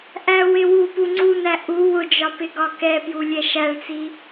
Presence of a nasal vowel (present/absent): absent